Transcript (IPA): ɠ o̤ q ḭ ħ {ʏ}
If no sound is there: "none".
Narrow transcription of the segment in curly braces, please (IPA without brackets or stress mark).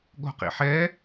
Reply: ɛ